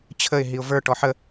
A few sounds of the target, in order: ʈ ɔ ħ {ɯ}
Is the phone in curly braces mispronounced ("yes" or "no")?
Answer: yes